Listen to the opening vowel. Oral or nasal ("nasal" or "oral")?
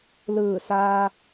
oral